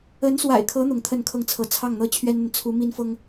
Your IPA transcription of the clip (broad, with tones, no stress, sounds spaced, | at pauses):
ə˧˥ n s w a̰˨˩ ɪ̯ kʰ ɤ˧˥ n̪ ʊ˧˥ ŋ t̪ʰ ə˥˧ n kʰ ɤ˥˩ ŋ t͡sʰ ɤ˧˥ t͡sʰ ɑ˥˩ ŋ n̪ ɤ˥ t͡ɕʰ ɥ ɛ˥ n n̪ ə˨ n t͡sʰ u˧˥ m i˥ n f ɤ˥ ŋ